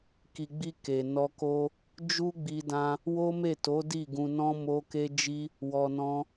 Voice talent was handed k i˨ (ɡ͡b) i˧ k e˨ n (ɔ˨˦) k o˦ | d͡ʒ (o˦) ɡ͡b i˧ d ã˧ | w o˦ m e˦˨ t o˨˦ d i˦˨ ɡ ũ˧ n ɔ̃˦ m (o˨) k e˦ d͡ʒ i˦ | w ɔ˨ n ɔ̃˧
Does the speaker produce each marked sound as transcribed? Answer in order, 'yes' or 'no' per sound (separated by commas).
yes, no, no, no